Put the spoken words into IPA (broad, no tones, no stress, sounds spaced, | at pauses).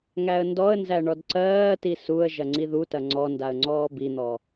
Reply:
ŋ æ ə̯ n d ɔ ə̯ n z æ ɳ ɔ d ǀ ɜː t i s u ə̯ ʒ ɐ ŋ͡ǀ i ð u t ɐ ŋ͡ǀ ɔ n d a ə̯ ŋ͡ǀ ɔː b i n̪ ɔ